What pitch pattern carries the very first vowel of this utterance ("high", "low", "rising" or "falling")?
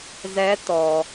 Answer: rising